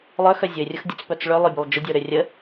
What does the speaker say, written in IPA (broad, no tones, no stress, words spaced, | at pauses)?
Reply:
lˠœxœ zʲʊɪ̯rʲʊx dʲət͡spœt͡s ɭølˠøbʲʊlˠ d͡ʒʊdʲəʊ̯ɾø rʲə